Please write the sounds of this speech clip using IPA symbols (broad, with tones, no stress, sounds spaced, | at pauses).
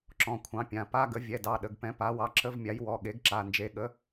ǁ ɔ̃˩˧˩ kʷʰ ɑ̃˨˥ pʲ ã˩˧˩ p a˧˥˧ ɡ ə˨˥ vʲ ɛ˩˧˩ d ɑ˩˧˩ ɗ ə˩˧˩ ɡ p ɛ̃˨˥ p a˨˥ w ɑ˨˥ ǁ ə˧˥˧ v mʲ a˨˥ j w ɔ˩˧˩ ɠ e˨˥ ɡ ǁ a˩˧˩ n d͡ʒ e˨˥ ɠ ə˨˥